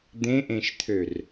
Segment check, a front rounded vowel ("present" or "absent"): present